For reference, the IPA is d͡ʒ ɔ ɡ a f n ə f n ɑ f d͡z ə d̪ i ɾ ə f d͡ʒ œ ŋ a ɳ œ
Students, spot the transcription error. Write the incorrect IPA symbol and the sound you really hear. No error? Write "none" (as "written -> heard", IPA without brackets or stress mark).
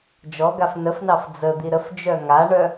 none